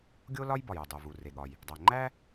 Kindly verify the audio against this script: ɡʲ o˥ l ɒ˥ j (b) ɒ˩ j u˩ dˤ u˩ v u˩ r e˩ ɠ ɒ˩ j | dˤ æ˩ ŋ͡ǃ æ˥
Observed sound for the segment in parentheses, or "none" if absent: b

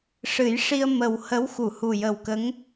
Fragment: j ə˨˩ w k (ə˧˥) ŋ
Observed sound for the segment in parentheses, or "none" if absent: ə˧˥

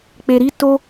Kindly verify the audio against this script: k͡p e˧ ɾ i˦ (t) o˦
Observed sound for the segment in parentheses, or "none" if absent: t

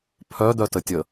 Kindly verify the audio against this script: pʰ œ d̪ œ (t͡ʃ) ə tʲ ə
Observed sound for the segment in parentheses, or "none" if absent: t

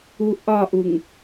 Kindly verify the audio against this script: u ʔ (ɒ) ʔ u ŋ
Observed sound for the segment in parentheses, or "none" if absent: ɒ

